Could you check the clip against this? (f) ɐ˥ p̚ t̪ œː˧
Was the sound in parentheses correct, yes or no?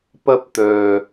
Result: no